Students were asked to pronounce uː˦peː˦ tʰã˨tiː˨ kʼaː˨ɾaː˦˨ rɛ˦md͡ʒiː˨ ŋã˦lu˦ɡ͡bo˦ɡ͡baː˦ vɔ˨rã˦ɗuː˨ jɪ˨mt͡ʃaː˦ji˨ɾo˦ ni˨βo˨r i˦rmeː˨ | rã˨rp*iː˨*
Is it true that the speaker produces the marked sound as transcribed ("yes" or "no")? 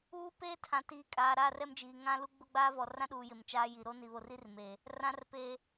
no